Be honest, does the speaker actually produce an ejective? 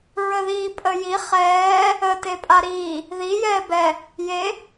yes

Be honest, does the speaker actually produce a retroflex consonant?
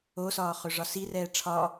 yes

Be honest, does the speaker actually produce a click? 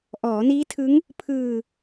no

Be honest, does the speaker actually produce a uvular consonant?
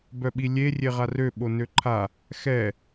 yes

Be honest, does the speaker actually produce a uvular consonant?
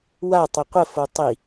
yes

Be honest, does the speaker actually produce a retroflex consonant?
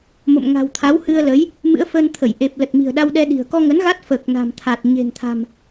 no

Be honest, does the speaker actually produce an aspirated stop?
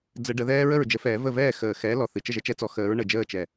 no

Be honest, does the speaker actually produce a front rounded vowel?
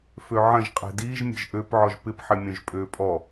yes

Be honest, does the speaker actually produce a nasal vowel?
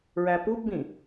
yes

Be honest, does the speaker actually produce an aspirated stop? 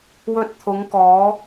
yes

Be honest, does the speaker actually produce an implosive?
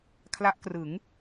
no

